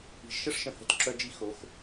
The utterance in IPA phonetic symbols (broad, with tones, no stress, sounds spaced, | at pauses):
i̤˨ ʒ ʃ ə˦ ʂ ʃ ə̃˨ h ə̤˧ t ǁ œ˧ d͡ʒ i˧ x o˨˦ x